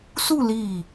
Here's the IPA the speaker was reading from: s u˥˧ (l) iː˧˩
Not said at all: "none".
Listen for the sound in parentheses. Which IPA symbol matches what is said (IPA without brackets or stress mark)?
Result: l